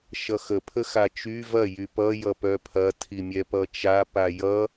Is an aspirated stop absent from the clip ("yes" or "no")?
no